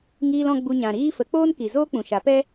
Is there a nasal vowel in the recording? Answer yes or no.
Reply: yes